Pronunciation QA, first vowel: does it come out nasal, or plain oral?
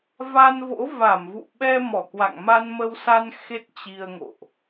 oral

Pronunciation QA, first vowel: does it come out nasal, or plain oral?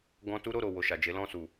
nasal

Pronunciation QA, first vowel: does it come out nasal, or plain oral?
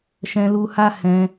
nasal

